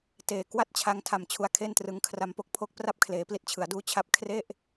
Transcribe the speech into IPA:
t eː˨˩ k w a˥˩ t̚ t͡ɕʰ a˧ ŋ tʰ a˨˩ m t͡ɕʰ u˧ a̯ kʰ e˥˩ n t r ɯ˧ ŋ kʰ r a˧ m p o˥˩ k̚ pʰ o˥˩ k̚ p r a˥˩ p̚ kʰ l eː˩˦ p l i˦˥ t̚ t͡ɕʰ ɯ˩˦ a̯ d uː˦˥ t͡ɕʰ a˦˥ p̚ kʰ r e˥˩ ʔ

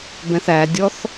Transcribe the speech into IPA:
b ɛ̃ θ æ dʲ ɔ θ

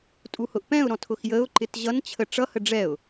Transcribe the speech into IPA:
tʼ u h ʊ ʔ p ɛ̃ ʊ̯ ɾ ɔ̃ tʰ ʊ x j ə ʊ̯ ǃ ɪ t ʑ ʌ n t͡ɕʰ ə ʈ͡ʂ ʌ h ə ɖ͡ʐ ɛ ʊ̯

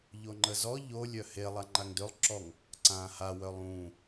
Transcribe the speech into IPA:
ʎ o ŋ͡ǃ ə z ɔ ʎ o lʲ œ h e lˠ a ŋ͡ǃ a ŋ d ø lˠ ǁ ɔ ŋ | ǀ ãː h a w œ lˠ ũː

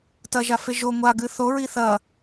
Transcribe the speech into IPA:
t ɐ ʒ a f e ʒ o ŋʷ a ɡ ɨ θ o ɹ i θ ɐ

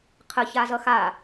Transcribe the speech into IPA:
qʰ ə ç a z ʌ x a

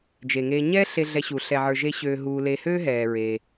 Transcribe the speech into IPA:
d͡ʒ e˩ ŋ eː˨ ɲ ɛː˦ ɬ e˨ ɮ ɛ˨ ɕ u˩ ɬ ɛ˩ ʕ ə˞˩ ʒ e˨ ɕ øː˨ ɦ uː˨ l e˨ h øː˦ ɦ ɛː˩ ɹ eː˩

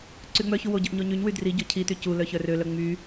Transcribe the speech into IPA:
ǀ y ŋ͡m œ ç u w o ɟ œ ʔ ɲ o ɲ y ɲ w y d r i ɟ o cʰ i t y c u l œ ç œ r ø l œ ŋ͡m y

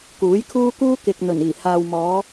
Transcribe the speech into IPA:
k uː˨˥ j kʰ uː˥ k uː˥ k ɪ˨ k̚ n̪ ɵ˨˩ n iː˨˩ h aː˨ w m ɔː˨˧

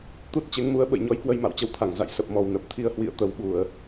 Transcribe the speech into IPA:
t̪ u˦˥ t̚ t͡ɕ e˨˦ ŋ m u˨˦ ə̯ ɓ ə̰˧˨ j ɲ ɔ˨˦ j k w ə˧ j m a̰˧˨ w t͡ɕ ə˨˦ w t̪ʰ a˧˩ ŋ z a̰˧˨ j s ə˨˩ p̚ m ɔ˨˩ w n ə˨˩ p̚ t̪ʰ i˧ ə̯ h w ḭ˧˨ ə̯ t̪ ə˨˩ w ɓ u˧˩˨ ə̯

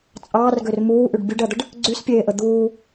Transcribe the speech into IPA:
t͡sʼ ɑː r ɡ ø r m uː ʔ y ɖ bʲ u ɖ ɜ d̪ ə ɖ | ɡ͡ǀ y s pʲ eː ʔ ə d̪ uː

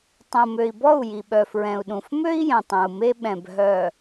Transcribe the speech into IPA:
tˤ õ˨ m ø˨ i̯ b ɔ˦˨ u̯ j i˨ ɓ œ˨ f ɹ ɛ̃˨ u̯ ɗ ũ˨ f m ø˦ i̯ j ɛ̃˨ tˤ ɛ̃˨ u̯ m e˦ ɓ ɛ̃˨ b ɦ œ˨

